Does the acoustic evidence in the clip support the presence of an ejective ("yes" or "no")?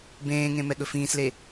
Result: no